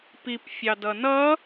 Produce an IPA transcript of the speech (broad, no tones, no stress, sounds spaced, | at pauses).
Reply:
p i p fʲ ɑ d ʌ n ʌ